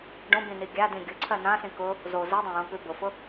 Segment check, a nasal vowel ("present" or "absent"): present